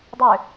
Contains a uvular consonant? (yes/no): no